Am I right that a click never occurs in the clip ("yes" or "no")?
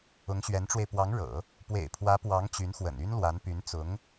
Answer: yes